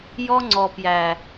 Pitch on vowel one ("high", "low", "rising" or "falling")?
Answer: high